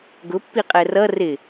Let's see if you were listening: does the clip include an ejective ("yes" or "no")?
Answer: yes